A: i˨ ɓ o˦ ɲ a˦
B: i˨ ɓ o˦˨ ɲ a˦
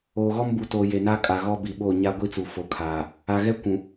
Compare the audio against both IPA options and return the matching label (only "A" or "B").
B